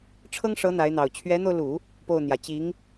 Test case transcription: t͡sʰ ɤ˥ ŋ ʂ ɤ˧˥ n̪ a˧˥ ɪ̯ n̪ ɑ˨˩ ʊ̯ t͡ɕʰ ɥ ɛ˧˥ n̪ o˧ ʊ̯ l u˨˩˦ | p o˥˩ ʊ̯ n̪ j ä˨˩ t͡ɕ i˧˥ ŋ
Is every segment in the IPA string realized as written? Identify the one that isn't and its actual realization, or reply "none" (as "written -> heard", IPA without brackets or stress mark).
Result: t͡sʰ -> ʈ͡ʂʰ